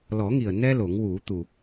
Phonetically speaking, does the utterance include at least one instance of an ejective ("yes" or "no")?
no